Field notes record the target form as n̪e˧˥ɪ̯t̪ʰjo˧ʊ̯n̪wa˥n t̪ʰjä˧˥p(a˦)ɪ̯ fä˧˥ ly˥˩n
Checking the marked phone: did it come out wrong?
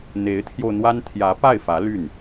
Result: yes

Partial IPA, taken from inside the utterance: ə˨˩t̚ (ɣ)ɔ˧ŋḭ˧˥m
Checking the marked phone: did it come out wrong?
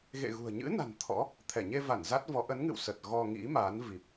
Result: no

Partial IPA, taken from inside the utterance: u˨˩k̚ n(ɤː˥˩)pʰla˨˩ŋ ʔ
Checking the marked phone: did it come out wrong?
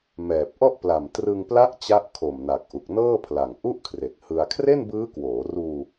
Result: no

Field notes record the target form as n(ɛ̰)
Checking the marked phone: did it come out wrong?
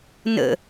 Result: yes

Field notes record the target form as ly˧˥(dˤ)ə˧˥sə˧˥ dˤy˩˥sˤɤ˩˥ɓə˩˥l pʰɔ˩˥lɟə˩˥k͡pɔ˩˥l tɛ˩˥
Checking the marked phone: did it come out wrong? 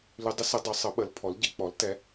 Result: no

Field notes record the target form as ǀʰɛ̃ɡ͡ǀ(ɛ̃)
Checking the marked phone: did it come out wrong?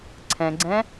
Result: no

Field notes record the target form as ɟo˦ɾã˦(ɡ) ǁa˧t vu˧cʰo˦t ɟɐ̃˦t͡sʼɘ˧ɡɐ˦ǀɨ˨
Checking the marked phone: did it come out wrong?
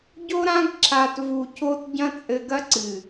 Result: no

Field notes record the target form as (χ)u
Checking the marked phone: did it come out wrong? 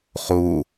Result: no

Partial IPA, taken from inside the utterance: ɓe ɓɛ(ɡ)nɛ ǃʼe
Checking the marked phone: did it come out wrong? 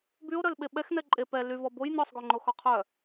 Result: yes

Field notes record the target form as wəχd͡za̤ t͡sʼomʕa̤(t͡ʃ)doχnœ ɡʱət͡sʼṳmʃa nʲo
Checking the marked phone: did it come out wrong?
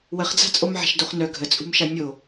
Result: yes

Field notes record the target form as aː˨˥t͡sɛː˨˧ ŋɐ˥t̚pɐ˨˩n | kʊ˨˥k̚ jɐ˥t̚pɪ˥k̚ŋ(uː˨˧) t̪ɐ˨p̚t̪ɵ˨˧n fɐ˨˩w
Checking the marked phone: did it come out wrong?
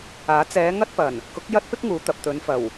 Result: no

